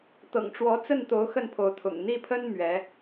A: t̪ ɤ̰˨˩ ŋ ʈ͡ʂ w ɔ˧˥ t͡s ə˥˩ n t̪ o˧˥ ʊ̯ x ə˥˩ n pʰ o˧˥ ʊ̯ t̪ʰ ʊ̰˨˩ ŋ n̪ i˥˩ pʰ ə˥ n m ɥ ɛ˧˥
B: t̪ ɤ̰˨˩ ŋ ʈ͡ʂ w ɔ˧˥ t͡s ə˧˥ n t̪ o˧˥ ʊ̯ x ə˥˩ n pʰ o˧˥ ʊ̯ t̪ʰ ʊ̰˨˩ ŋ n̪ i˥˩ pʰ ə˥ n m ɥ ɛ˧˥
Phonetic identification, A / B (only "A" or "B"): A